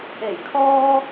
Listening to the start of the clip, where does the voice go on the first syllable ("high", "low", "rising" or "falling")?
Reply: low